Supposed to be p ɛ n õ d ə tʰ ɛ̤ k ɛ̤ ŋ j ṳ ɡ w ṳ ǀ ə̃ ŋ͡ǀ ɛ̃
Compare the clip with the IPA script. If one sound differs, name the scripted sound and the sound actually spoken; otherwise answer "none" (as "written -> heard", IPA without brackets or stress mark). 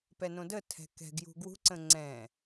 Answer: ŋ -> ɡ